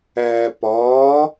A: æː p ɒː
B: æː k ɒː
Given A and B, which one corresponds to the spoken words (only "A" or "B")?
A